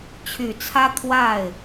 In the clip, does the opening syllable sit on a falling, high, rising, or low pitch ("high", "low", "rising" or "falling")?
low